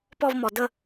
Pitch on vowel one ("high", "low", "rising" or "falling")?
falling